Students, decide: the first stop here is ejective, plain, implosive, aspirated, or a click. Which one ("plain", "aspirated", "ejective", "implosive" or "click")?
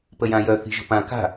plain